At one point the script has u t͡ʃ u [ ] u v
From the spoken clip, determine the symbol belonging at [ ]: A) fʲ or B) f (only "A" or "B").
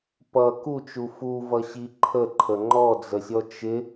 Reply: B